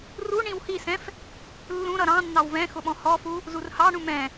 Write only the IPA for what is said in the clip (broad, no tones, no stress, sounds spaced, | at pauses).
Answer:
r u ɳ ĩ w h i s ɛ̃ f | lː ũ ɾ ʌ ɾ ɑ̃ nː ɑ w v ɛ̃ x ʊ ɓ ɔ̃ h ɔ f u | z u r h ɑ ɳ ũ m ɛ̃